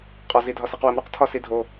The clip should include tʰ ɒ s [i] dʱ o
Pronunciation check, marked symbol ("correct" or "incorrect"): correct